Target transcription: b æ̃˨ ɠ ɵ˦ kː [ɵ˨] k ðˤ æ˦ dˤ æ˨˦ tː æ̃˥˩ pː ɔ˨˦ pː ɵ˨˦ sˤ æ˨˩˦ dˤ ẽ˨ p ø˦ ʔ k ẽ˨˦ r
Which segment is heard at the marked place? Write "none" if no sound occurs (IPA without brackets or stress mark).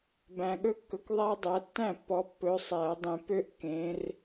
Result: ɵ˨